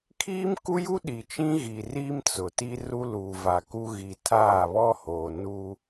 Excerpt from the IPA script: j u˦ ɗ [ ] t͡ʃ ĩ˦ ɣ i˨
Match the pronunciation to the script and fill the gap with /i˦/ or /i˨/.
i˨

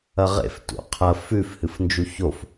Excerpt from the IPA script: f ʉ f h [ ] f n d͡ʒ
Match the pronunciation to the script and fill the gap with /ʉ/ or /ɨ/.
ɨ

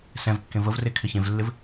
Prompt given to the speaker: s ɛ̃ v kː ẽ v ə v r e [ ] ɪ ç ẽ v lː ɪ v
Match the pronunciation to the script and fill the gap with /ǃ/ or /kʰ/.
kʰ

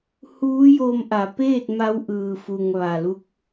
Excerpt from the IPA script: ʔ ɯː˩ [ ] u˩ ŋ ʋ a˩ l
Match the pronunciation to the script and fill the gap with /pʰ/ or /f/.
f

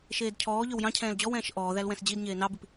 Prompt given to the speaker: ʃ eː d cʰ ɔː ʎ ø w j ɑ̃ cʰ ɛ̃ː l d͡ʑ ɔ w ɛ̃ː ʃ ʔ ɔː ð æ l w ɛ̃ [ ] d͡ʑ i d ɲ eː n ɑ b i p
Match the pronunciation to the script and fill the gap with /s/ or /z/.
s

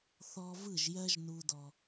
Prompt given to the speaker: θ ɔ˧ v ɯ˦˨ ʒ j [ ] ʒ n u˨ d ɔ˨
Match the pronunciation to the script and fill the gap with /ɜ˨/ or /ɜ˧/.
ɜ˧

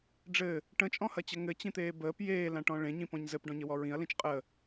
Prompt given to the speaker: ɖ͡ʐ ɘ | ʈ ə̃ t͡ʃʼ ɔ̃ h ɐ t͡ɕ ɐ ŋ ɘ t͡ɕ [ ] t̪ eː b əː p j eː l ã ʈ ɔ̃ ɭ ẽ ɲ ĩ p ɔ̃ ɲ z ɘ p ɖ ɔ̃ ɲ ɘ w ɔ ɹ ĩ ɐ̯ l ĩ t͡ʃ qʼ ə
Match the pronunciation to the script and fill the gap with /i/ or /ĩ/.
ĩ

